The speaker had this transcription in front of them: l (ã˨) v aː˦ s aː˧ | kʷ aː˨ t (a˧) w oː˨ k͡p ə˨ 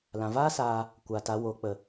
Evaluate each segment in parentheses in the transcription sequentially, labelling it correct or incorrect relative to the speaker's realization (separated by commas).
correct, correct